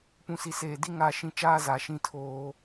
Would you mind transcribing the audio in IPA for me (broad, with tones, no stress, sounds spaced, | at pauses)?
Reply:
p ũ˨ s i˨ s eː˨ d i˦ ŋ a˦˨ ʃ ĩ˦ t͡ʃ aː˦ z a˨ ʃ ĩ˦˨ tʰ oː˦